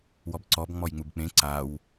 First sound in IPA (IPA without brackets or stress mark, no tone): w